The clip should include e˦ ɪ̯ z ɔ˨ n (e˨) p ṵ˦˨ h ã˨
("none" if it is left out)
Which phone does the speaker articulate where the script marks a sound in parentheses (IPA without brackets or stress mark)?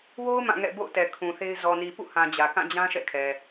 i˨